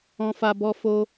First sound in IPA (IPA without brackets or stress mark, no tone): ɔ̃